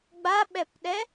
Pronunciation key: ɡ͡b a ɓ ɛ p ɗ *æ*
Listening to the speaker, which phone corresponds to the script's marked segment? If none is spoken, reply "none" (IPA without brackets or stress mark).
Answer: ɛ